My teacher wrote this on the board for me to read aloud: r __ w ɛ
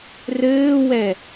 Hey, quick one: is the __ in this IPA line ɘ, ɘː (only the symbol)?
ɘː